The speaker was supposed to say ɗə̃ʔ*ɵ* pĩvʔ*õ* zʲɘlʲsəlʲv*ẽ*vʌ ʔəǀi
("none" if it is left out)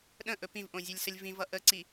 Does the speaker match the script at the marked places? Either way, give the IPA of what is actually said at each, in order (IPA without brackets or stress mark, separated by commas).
ɵ, õ, ĩ